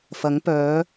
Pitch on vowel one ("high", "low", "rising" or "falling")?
rising